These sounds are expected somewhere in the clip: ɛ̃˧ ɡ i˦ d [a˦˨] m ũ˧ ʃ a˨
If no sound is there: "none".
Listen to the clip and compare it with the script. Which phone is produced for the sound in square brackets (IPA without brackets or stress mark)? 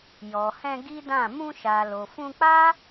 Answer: ã˦˨